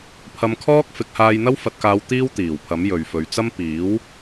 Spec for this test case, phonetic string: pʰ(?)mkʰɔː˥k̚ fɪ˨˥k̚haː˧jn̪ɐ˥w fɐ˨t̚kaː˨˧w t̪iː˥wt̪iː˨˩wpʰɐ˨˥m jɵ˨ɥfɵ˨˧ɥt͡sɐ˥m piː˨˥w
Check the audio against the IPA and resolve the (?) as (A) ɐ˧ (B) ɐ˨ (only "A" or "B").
A